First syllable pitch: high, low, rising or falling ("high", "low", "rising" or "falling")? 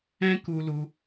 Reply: high